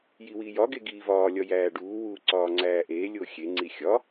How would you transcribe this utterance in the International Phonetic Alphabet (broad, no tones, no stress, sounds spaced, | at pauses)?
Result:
j i w iː j ɒ ɡ e ɡ iː v ɒː lʲ ɒ j æː ɖ uː w uː ǀ ɒː ŋ͡ǀ æː ʔ eː lʲ o xʲ e ŋ͡ǀ i xʲ ɒ